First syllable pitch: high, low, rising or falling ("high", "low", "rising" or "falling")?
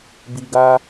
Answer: low